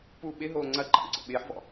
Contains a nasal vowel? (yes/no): no